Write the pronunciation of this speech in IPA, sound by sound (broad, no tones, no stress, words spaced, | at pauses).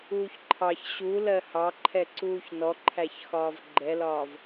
uːçǃʰɑç ɕu lɜhɑǃʰɛǀuːç nɔǃʰæçxɒːv ɡ͡ǃɛlɒːv